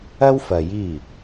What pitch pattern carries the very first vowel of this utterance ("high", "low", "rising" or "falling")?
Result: high